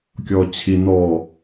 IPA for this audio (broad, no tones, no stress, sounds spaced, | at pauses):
kʲ ɔ t͡ɕʰ i n ɔ